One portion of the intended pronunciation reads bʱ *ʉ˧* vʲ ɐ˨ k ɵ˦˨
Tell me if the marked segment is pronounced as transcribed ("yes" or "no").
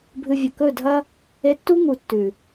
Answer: no